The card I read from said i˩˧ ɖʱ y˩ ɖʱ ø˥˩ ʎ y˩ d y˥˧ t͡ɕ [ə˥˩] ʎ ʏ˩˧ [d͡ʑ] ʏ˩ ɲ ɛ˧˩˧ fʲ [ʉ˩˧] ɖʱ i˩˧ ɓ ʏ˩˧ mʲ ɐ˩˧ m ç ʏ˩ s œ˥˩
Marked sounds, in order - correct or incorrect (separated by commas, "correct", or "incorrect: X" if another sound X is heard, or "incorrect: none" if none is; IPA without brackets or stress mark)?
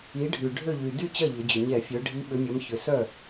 incorrect: ɐ˥˩, correct, incorrect: ø˩˧